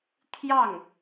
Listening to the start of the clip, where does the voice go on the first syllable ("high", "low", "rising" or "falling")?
falling